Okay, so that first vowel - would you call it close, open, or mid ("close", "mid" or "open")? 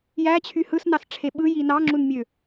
open